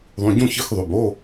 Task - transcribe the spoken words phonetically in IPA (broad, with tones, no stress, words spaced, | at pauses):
ðˤũ˩˧˩ ɟũ˥˨çɨ˧˥˧xðˤʉ˩˧˩b o˧˥˧